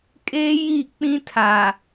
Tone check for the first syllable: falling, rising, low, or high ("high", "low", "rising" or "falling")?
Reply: high